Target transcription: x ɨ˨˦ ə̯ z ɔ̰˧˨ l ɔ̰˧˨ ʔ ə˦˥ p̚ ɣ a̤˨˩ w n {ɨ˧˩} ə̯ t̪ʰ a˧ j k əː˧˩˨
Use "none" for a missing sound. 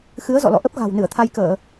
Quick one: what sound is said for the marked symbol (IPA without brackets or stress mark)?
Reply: ɨ˧˩